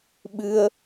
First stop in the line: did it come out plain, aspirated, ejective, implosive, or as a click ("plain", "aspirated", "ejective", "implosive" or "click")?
implosive